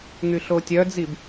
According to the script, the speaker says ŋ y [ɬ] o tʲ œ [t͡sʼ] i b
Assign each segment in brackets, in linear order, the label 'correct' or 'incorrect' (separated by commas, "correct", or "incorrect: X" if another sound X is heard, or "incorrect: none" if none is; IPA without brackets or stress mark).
correct, incorrect: d͡z